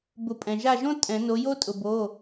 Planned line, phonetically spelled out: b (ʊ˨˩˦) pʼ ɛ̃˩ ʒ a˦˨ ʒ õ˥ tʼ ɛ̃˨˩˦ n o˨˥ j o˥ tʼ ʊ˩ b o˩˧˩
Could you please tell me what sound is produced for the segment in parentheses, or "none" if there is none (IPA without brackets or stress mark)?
ʊ˨˩˦